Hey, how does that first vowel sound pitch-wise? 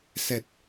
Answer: low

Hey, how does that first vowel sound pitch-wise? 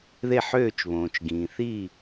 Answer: falling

